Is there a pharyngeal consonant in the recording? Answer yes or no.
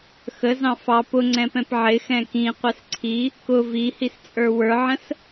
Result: yes